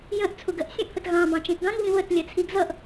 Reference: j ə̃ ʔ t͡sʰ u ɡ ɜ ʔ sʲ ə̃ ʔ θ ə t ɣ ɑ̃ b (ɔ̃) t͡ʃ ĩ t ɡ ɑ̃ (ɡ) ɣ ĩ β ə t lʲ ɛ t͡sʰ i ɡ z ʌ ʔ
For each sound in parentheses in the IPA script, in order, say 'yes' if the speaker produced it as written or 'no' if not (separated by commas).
no, no